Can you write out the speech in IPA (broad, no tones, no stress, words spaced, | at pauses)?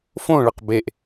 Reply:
fõ ɭɐqbeʔ